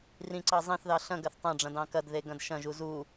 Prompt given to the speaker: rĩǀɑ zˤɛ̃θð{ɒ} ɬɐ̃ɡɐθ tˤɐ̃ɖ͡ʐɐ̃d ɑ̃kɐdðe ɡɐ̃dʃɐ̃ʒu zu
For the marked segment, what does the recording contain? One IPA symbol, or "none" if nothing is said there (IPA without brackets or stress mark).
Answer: ɑ